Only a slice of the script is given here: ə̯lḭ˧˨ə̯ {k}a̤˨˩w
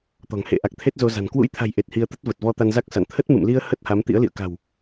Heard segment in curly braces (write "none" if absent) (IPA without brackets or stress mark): k